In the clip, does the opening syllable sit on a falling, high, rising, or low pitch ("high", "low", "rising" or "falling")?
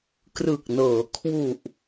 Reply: low